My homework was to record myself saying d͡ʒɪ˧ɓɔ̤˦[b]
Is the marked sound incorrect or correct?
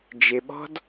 incorrect